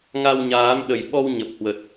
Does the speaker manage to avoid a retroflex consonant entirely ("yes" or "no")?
yes